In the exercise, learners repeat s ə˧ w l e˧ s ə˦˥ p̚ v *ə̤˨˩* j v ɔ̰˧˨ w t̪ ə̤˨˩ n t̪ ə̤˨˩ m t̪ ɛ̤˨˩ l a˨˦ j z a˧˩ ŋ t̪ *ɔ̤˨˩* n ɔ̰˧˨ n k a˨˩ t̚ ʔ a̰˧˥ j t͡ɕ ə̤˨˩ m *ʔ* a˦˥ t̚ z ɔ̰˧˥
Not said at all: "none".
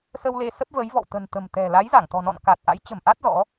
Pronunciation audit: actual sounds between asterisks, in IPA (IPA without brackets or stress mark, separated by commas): ə˨˦, ɔ̤˨˩, ʔ